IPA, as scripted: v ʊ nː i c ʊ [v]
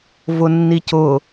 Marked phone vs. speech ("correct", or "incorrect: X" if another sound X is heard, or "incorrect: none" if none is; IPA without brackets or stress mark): incorrect: none